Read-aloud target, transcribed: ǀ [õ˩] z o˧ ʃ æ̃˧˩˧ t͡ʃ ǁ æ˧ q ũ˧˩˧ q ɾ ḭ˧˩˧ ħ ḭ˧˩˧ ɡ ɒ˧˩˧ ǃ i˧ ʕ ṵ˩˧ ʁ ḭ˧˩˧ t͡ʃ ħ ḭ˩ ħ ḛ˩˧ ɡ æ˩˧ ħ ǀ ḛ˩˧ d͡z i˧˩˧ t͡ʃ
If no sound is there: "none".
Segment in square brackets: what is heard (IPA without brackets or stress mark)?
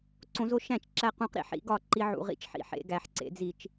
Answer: õ˩˧